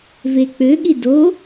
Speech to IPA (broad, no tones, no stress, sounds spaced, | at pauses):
v e k͡p ø ɠ i d o